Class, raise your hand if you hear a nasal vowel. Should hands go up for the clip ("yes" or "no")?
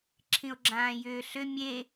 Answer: yes